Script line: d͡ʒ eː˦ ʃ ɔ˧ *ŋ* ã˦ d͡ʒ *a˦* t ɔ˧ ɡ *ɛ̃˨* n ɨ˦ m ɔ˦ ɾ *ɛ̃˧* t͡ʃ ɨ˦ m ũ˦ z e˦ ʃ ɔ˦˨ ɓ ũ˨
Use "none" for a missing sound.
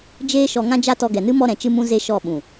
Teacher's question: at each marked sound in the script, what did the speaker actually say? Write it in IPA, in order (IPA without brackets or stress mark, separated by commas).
ŋ, a˦, ɛ˨, ɛ̃˨